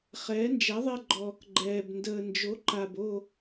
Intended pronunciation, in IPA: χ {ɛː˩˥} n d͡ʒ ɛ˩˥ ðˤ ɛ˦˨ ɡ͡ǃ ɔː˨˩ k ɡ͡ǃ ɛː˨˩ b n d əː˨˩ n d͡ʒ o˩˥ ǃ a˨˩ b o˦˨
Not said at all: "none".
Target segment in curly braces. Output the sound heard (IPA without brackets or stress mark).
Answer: ɛː˩˥